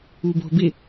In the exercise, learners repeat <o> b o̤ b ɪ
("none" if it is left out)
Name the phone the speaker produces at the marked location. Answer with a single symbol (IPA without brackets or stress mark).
u